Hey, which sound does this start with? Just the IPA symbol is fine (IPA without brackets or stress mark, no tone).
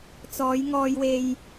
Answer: t͡s